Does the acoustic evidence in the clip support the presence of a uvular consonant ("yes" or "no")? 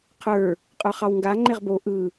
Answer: yes